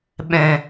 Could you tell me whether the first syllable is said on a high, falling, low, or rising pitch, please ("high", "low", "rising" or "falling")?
low